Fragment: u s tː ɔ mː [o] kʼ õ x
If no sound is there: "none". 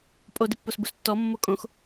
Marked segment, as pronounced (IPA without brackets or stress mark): o